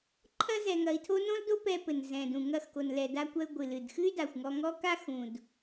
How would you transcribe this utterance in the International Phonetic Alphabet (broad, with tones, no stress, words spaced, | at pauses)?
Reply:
ǃʰɐ˥ zɛ˧ŋɐ˧i̯tʰo˥ nõ˥ldo˥ pɛ˧pɘ˩n zɛ̃˩dũ˩ ŋɐ˧xko˩nlɛ˩ da˧kʷɐ˧y̯ ɡʷɨ˩lɨ˩dxɨ˥y̯ da˩xʷŋɔ˧ŋɔ˥ka˥ xũ˩d